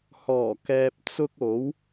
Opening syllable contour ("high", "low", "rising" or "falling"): low